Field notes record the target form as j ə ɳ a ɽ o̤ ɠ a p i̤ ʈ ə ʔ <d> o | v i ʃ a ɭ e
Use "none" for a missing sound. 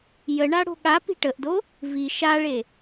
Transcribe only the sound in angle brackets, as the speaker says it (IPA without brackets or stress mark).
d